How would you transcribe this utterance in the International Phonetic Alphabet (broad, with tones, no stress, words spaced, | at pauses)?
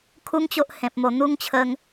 kʰu˦ŋt͡ɕo˦ʔhẽ˨p̚ mo˨˩n̪u˦ŋ t͡ɕʰə˧ŋ